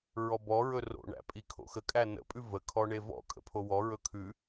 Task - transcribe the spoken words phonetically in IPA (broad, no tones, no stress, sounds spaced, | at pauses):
ɹ ɔ b ɔ ɹ ɵ r o̰ ɳ æ̰ pʼ i kʰ o̰ x ə kʼ æ n ə̰ pʼ ʉ v ə kʰ ɔ ɳ e v ɔ̰ kʼ ə̰ pʰ o w ɔ ɹ ɵ kʰ ʉ